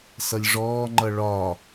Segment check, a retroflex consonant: present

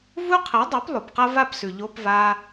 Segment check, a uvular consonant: present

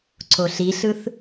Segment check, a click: present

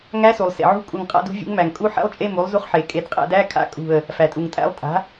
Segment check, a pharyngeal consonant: present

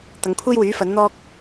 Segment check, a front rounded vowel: present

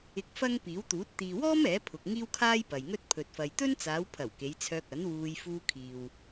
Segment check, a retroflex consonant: absent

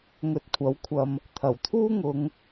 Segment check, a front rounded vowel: absent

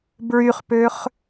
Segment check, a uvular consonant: present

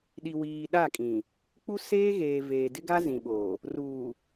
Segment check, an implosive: present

